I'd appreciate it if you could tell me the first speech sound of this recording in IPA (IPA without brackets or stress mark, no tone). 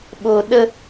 ɓ